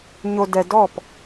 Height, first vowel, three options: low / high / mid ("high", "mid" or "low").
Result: mid